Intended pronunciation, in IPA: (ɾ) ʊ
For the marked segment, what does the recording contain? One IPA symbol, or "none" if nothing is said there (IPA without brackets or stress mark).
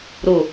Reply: ɾ